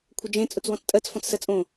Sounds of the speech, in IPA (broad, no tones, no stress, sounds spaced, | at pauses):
kʷʰ ə d͡ʒ ẽ t͡sʼ ʊ t͡s w ɔ̃ t͡s tʼ ɜ t͡s f ɔ̃ t͡s s ɜ t͡sʼ õ